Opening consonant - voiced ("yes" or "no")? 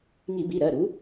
yes